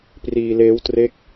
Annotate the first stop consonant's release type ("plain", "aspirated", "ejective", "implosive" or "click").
plain